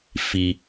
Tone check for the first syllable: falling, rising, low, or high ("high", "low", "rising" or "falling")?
low